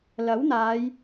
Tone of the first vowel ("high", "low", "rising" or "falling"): rising